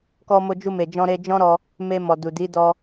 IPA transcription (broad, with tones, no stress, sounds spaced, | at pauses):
k ɔ˧ m o˧ d͡ʒ u˧ m e˨ d͡ʒ ɔ̃˧ ɾ e˧ d͡ʒ ɔ̃˦ ɾ ɔ˧ | m e˧ m ɔ˨ d u˨ d i˨˦ d ɔ˧